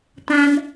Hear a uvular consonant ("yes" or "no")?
no